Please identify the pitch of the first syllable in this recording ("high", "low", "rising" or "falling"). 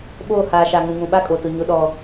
falling